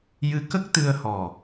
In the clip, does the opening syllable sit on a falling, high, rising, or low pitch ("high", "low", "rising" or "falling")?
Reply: rising